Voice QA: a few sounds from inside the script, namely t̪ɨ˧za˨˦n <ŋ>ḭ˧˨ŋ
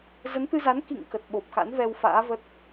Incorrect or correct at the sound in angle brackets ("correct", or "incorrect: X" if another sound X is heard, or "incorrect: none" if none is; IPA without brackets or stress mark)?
incorrect: k